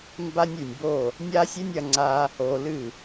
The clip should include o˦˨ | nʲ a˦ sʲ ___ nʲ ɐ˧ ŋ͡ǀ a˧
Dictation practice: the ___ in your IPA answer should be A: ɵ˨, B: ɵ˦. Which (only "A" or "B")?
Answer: B